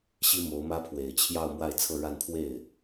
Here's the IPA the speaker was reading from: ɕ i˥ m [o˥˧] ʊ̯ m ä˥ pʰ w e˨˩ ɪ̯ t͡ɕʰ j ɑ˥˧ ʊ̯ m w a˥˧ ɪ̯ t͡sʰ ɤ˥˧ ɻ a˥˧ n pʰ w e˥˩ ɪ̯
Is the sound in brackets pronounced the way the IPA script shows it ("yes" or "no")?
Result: no